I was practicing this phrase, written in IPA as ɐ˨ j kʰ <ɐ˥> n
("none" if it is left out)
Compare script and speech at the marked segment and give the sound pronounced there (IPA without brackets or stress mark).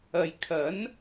ɐ˨˥